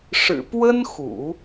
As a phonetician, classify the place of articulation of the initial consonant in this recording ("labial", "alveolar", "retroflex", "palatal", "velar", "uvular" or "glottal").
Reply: retroflex